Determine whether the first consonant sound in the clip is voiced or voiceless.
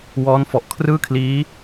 voiced